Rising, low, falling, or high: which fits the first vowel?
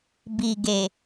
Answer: low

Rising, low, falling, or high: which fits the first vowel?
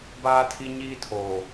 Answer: high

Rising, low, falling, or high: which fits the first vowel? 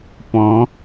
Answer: rising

